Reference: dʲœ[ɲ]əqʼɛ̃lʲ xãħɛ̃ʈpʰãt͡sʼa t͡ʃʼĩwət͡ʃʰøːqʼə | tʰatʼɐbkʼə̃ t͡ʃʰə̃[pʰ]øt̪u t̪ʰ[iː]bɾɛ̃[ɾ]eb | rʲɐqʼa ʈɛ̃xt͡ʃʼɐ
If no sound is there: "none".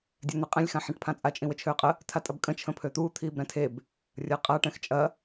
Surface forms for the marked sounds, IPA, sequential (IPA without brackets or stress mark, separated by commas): n̪, pʰ, iː, tʰ